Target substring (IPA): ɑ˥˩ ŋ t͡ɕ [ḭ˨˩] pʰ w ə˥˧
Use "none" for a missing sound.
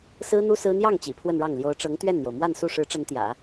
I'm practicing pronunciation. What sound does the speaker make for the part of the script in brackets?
ḭ˨˩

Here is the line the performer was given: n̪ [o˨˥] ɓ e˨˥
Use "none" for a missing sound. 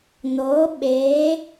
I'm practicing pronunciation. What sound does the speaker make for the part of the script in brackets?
o˨˥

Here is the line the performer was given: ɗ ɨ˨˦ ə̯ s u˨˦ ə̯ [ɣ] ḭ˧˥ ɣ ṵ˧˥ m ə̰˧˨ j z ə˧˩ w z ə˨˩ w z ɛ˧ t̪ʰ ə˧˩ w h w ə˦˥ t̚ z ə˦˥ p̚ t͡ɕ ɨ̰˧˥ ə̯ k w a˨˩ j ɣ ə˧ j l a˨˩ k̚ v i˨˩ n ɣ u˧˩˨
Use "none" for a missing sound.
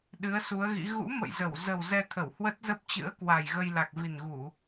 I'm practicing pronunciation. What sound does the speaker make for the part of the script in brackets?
ɣ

